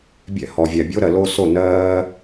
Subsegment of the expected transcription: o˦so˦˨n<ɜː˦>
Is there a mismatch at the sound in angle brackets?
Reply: no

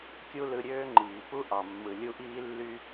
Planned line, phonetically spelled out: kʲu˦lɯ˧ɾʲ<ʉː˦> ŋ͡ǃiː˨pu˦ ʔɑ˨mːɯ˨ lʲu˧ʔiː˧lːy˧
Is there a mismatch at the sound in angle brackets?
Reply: yes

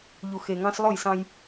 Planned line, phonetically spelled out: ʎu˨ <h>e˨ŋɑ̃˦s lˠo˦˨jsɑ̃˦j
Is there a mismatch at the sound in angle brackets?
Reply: yes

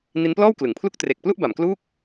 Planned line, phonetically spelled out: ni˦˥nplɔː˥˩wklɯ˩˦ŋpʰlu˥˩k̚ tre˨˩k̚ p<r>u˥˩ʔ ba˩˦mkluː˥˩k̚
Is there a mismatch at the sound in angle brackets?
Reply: yes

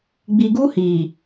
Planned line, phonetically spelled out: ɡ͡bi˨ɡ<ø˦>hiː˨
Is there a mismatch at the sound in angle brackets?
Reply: yes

